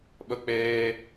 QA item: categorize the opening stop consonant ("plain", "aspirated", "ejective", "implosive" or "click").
implosive